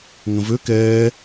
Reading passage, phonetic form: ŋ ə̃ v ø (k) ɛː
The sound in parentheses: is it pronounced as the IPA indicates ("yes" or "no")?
yes